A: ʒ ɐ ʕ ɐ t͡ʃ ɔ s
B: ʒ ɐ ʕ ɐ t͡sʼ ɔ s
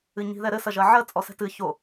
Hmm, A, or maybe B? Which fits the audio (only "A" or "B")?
B